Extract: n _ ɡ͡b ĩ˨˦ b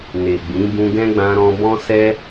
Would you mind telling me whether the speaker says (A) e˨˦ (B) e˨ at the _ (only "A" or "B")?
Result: B